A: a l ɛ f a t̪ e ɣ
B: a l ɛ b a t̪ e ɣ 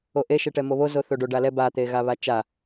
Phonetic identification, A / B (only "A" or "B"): B